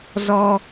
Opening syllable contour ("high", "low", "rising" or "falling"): high